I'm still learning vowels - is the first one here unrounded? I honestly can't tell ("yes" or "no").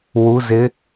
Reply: no